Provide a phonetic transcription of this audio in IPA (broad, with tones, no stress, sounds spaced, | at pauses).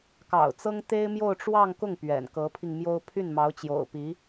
k ɑ̰˨˩ ʊ̯ t͡s ɤ˥ ŋ t̪ e˥ ɪ̯ m j o˥˧ ʊ̯ ʈ͡ʂ w ɑ˥˧ ŋ k ʊ˥˩ ŋ p ɥ ɛ̰˨˩ n k ɤ˧˥ pʰ i˧ ŋ m j o˥ ʊ̯ pʰ y˥˩ n m ɑ˧˥ ʊ̯ t͡ɕ j o̰˨˩ ʊ̯ p i˧˥